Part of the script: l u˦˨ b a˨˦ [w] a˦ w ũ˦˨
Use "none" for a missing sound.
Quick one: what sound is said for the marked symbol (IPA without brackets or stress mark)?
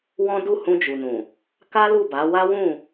w